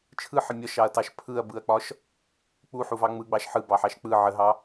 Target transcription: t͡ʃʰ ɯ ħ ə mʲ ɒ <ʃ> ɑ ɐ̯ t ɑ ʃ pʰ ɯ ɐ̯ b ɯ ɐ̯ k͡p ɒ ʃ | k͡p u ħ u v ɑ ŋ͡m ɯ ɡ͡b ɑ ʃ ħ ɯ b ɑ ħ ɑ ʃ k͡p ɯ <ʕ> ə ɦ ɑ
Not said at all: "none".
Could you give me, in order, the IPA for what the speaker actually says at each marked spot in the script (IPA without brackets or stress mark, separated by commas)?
ʃ, ʕ